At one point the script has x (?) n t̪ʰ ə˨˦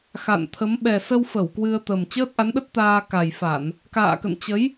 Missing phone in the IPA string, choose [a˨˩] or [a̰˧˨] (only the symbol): a̰˧˨